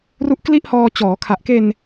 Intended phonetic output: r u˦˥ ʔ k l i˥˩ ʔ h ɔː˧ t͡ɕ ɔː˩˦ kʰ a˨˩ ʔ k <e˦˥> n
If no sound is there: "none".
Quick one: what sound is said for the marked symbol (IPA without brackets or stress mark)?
e˧